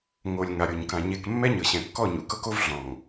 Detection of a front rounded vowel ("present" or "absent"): absent